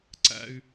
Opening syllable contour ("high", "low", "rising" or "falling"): high